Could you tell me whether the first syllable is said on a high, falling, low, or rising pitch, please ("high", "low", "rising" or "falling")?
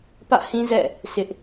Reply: falling